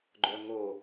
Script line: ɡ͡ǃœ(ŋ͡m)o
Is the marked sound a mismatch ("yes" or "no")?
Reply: yes